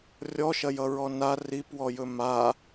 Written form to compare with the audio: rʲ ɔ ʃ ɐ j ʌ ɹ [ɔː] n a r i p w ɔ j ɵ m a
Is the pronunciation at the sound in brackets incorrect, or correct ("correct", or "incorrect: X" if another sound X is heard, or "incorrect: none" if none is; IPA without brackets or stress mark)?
incorrect: ɔ